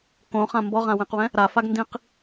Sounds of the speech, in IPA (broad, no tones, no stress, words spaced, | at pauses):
kõχã mbɔʁãwẽqwɛ̃ | ɾafaɡ ndĩq